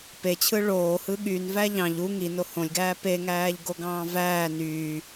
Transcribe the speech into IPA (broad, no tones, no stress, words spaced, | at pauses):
pet͡ɕʰɯ ɭoːhɯ ɠynvæ ʎɑ̃ʎ u ŋino hõlʲɡæː peŋæːʎɡoɡɑ̃ː væː nyː